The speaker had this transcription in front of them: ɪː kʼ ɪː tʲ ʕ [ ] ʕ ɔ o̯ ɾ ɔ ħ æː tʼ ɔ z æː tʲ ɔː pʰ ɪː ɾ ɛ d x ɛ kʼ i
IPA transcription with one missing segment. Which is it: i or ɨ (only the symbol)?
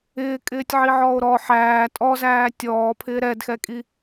i